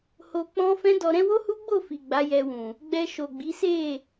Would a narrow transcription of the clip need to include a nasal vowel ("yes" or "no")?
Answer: yes